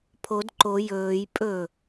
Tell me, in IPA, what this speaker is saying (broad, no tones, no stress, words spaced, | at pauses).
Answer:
pʰod ǃo jɵːj pʼɵ